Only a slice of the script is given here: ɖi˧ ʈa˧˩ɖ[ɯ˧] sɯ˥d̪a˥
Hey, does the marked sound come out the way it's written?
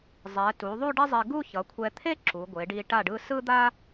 yes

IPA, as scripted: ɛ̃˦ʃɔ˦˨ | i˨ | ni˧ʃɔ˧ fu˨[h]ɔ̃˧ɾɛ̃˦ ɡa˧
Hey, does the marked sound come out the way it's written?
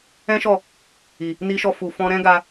no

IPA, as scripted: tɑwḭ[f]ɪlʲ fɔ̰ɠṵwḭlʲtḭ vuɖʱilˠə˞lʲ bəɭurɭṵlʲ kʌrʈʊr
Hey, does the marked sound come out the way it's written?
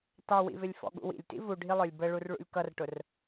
no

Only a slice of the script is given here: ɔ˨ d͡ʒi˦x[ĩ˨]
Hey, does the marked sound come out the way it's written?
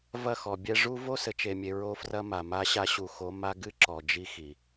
no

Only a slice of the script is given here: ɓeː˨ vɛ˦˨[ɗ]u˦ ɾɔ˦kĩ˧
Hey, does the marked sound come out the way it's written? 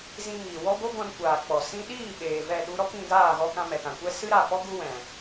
yes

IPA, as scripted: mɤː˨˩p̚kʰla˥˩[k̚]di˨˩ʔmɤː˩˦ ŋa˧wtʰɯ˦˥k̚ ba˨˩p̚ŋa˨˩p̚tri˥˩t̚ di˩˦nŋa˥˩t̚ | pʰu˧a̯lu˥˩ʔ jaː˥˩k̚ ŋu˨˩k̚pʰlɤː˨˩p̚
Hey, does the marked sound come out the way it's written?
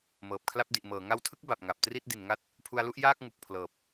no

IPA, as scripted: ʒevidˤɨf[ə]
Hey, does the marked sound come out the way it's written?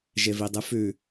no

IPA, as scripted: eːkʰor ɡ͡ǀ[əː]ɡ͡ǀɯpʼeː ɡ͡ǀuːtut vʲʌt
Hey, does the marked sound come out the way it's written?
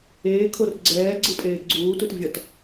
no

